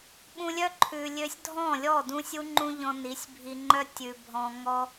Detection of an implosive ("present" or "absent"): present